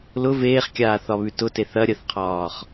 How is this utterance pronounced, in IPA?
lʊ veːχkʲaːθɒβʉ tʊteθ ɐ ɾʲəθqʰɒːχ

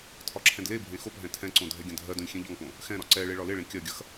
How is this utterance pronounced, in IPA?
tʰɒǁʰɛ̃dlebʱẽ xopɦɛ̃ tʰɛ̃ǀõ dʱɛɡʲɐ̃dʱɜdõlʲ xʲẽʎɒŋpõ | xɛ̃ɾɒ ǀɛɭe ɭɒleɭẽ kʲɜɡʲɐx

